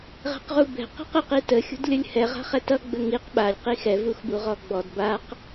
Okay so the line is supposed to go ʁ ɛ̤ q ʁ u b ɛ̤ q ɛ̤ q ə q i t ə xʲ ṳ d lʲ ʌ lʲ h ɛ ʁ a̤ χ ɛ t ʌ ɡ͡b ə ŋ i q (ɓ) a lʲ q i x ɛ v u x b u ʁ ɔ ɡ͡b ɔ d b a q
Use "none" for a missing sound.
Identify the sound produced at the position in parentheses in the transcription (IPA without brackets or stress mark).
ɓ